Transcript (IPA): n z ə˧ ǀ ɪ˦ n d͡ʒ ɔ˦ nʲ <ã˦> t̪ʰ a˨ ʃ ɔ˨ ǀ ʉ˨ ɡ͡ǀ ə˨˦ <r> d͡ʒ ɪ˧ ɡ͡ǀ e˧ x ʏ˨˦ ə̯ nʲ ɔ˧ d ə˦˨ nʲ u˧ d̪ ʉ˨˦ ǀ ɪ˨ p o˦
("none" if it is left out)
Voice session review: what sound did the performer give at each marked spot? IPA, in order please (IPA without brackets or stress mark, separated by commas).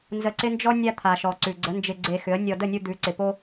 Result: a˦, n